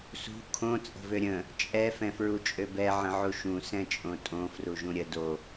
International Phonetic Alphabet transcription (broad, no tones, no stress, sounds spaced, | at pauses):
s ṳ kʰ õ t͡sʼ ə̤ v ø ɾʲ ə̃ | t͡ʃʼ ɛ f ɛ̃ f ɹ u t͡ʃʼ ø b ɛ ʕ ə̃ ʕ u ʃ ũ s ɛ̃ t͡ʃʼ õ tʼ õ f r u ʒ ũ ɾʲ ə d o